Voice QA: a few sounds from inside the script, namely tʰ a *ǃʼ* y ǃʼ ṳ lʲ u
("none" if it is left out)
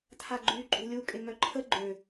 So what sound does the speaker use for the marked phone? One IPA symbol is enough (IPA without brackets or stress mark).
ɡ͡ǃ